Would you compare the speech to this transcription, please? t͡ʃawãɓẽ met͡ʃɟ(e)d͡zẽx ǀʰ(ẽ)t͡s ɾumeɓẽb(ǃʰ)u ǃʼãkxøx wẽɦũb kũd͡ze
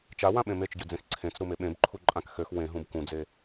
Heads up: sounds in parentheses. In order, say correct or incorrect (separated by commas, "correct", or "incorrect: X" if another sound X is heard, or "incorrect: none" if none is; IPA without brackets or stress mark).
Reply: incorrect: ø, correct, correct